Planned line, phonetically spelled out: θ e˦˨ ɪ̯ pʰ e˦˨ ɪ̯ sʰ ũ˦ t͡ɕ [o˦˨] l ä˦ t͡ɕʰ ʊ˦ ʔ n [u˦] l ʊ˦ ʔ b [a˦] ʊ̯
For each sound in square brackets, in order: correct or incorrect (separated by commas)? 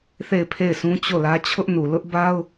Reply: correct, incorrect, correct